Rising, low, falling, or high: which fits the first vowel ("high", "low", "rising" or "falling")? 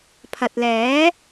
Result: low